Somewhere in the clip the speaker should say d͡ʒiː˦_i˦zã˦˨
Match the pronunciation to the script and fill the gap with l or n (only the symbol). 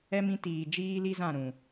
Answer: l